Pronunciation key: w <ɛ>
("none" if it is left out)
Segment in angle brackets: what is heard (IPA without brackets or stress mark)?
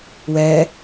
ɛ